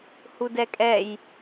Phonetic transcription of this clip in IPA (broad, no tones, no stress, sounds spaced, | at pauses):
h u d ɛ kʼ ɛ j